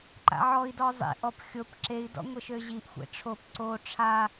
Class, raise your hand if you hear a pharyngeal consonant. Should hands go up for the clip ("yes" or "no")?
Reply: yes